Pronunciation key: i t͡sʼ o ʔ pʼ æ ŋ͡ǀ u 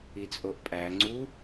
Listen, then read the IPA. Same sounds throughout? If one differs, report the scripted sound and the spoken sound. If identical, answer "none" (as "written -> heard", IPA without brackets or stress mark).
none